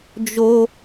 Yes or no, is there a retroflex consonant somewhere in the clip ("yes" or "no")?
no